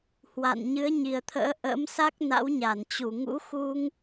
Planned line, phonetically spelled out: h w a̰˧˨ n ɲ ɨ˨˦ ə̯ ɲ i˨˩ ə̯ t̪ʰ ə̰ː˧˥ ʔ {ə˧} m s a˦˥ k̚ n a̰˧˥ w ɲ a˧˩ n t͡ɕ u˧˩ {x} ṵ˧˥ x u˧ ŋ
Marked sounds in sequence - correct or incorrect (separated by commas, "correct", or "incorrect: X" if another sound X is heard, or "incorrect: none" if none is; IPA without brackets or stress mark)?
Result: incorrect: ə̰˧˥, incorrect: ŋ